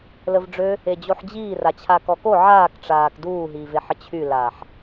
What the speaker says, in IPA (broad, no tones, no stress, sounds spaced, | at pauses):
l ə v ɖ͡ʐ ø | e d͡ʑ o ħ d͡ʑ iː r a t͡ɕʰ a k ɔ k o ʕ aː k ʈ͡ʂ aː k d uː ɦ iː v e ħ ə t͡ɕʰ y l aː ħ